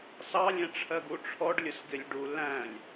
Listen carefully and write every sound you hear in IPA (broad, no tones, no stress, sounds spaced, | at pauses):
s ɑ lʲ ɛ̃ ʈ͡ʂʰ ɜ ɡ u ʈ͡ʂʰ ɔ ɖ lʲ ʊ s ɡ ɪ lʲ ɖ u l æ̃ lʲ